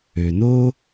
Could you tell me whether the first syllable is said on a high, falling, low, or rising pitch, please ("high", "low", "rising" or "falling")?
low